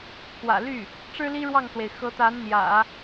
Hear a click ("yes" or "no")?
no